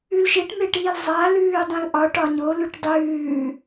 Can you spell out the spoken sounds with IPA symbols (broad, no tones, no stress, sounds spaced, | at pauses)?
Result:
ʉ l ʃ e ʈ m e ʈ iː l zˤ a l ʉː dˤ ẽ l ʔ ɒ ʈ ɒ ɲ o l ʉ ʈ dˤ ʉː